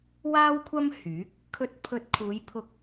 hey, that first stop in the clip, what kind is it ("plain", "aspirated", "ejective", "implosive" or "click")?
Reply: aspirated